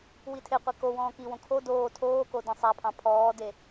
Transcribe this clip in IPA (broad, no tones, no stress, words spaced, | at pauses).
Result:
witʰeqʷe kowɔ̃ː kiwõ kʰo doː tʰoːko dẽsˤæpʰɑ̃ pʰɔːde